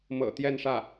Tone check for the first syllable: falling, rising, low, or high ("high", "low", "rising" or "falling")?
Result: low